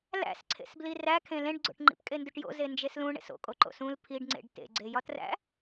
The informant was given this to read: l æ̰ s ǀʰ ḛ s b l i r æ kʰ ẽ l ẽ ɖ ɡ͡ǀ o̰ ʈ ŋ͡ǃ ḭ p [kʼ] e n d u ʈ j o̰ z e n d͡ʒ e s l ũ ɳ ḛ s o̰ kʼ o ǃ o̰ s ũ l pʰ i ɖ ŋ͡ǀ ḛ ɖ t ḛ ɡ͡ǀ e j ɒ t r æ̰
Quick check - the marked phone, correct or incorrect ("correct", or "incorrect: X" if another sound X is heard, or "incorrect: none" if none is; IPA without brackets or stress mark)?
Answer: correct